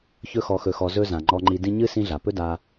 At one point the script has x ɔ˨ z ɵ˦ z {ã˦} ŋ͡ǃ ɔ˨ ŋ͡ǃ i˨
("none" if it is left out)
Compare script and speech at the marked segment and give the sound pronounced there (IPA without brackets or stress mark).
ã˩